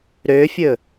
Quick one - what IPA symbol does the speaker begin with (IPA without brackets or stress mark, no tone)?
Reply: ɾ